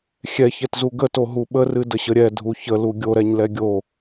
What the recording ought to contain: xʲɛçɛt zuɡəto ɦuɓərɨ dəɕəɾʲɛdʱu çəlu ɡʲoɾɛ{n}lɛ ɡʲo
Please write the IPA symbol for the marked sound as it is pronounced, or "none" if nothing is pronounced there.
ɲ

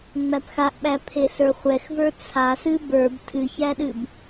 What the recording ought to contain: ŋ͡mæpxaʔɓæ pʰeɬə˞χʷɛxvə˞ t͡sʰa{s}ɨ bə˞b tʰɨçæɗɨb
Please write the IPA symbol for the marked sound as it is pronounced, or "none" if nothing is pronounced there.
s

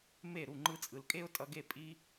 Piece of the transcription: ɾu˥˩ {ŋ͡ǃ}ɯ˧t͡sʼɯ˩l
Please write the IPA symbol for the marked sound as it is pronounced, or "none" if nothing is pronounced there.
ŋ͡ǃ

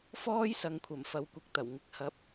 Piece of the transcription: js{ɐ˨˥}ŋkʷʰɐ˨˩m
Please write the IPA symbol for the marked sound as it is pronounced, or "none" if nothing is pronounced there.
ɐ˨˧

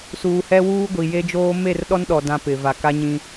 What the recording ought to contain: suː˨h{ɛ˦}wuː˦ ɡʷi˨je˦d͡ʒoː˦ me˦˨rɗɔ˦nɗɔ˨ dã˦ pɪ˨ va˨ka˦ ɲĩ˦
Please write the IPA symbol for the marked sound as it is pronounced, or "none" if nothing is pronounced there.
ɛ˦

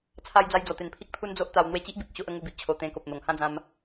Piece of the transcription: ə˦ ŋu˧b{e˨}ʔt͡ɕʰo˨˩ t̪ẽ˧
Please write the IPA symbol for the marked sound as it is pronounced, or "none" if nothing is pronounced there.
i˨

